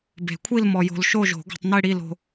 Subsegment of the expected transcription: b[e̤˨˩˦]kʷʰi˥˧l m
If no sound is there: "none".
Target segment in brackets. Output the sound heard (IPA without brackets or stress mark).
e̤˨˩˦